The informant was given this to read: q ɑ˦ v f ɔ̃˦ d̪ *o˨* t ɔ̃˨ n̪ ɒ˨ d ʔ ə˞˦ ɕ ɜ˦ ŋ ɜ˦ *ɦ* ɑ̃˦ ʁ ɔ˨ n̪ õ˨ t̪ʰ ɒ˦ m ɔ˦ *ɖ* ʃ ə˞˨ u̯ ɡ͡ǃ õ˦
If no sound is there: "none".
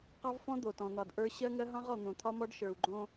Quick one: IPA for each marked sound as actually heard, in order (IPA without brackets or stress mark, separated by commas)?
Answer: o˨, ɦ, ɖ